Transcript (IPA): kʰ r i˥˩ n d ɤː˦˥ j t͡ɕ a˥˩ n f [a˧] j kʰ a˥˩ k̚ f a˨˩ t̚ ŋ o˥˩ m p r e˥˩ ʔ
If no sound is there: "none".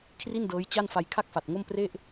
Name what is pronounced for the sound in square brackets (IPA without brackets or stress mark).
a˧